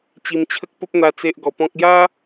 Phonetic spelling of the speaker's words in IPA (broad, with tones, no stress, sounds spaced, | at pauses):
t͡ɕ i˧ m t͡ɕʰ ə˦ k̚ p ə˦ p̚ n̪ a˧ t͡s e˦ ʔ ɡ ɔ˧ p ɔ̃˦ k̚ j a˦